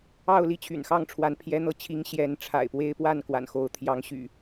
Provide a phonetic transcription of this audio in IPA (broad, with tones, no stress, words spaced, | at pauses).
ɑ˥˨ʊ̯li˥˨t͡ɕʰy̰˨˩n xɑ˥˨ŋʈ͡ʂʰwa˨˦n pʰjɛ˨˦n̪ɤ˨˦t͡ɕʰi˨˦ŋ ɕjɛ˨˦nʈ͡ʂʰa̰˨˩ɪ̯pwe˦ɪ̯ pwa˥˨nkwa̰˨˩nxo˨˦ʊ̯ t̪ʰjɑ˨˦ŋɕy̰˨˩